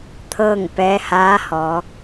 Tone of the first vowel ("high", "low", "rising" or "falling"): falling